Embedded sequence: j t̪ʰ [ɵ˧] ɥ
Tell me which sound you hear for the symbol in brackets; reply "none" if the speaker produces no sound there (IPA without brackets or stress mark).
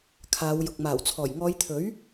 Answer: ɵ˨˥